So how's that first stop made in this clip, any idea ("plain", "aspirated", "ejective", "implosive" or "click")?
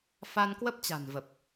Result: plain